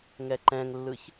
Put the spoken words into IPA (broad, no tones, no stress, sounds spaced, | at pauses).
ŋ ɛ ǃ ɛ̃ ŋ lː ɯ ç